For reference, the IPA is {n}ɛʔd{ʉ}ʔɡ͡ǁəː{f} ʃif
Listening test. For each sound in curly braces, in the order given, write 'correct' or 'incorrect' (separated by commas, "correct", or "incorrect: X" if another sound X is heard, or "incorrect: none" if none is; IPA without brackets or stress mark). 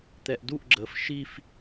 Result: incorrect: t̪, incorrect: u, correct